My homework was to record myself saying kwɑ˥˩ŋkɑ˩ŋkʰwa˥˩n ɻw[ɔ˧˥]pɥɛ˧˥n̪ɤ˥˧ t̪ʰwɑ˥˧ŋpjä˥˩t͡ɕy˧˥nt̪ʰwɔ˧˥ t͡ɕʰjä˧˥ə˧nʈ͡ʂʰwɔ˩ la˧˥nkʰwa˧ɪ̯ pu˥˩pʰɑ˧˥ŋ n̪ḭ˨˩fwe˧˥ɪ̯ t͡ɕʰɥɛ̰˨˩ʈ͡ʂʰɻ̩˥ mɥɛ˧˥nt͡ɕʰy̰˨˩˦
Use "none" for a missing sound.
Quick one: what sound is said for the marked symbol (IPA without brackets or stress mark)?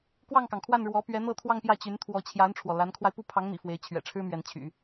ɔ˧˥